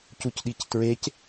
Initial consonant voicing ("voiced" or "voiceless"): voiceless